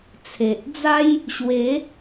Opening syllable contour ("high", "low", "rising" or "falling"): low